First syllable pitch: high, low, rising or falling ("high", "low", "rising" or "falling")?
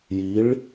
rising